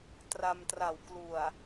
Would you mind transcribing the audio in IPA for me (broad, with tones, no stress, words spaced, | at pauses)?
tra˧mtra˨˩wklu˨˩a̯